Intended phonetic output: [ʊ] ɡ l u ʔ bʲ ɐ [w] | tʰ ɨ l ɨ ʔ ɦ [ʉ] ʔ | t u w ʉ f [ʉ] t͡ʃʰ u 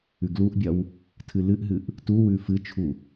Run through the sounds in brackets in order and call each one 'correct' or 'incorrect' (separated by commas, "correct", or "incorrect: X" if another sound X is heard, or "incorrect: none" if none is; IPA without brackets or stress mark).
incorrect: ʉ, correct, incorrect: ɨ, incorrect: ɨ